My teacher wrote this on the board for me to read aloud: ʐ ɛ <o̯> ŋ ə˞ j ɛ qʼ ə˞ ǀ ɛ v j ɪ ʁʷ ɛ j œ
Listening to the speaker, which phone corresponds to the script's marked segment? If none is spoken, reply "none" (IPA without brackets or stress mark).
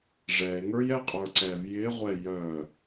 e̯